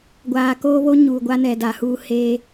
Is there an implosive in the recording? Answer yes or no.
no